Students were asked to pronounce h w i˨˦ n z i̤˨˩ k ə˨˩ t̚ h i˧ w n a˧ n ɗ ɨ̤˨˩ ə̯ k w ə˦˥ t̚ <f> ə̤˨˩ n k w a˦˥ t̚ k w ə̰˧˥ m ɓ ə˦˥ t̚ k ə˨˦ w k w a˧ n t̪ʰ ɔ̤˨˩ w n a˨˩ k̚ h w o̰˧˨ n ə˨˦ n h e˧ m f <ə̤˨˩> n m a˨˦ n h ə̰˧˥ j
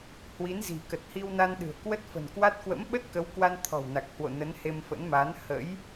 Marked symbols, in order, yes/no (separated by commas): yes, no